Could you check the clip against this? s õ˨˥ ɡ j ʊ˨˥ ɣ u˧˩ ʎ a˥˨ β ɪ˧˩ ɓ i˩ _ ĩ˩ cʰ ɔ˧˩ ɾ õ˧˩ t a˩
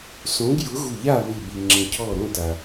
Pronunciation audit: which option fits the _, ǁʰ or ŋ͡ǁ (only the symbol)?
ŋ͡ǁ